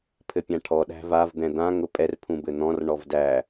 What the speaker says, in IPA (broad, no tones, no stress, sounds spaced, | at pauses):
pʰ ɘ pʲ ã ʈʰ ɔ ɗ æ̤ v a v d̪ ɛ̃ d̪ ã ŋ ʊ pʼ ɛ r pʰ ũ b ɘ n̪ ɔ̃ r ɳ ɔ v d æ